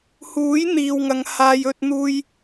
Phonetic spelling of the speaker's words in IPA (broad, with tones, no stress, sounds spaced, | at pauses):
h uː˨˥ j n̪ iː˨ w ŋ ɐ˨˧ ŋ h aː˧ j ɵ˧ t̚ n̪ uː˧ j